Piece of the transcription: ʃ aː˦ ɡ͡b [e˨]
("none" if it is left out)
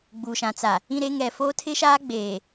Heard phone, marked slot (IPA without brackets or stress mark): eː˨